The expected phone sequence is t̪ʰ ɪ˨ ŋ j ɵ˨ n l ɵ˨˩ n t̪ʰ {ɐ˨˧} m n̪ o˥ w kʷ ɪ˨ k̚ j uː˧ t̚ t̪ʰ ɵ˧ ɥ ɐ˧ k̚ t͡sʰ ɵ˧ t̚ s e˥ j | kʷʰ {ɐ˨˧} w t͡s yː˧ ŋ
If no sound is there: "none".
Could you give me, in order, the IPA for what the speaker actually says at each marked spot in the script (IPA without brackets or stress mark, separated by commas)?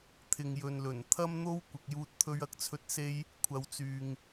ɐ˥, ɐ˧